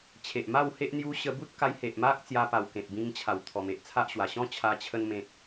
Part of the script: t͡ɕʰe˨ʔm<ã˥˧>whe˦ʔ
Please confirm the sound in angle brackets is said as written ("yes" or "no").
no